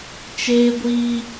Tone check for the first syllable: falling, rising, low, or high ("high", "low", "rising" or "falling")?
high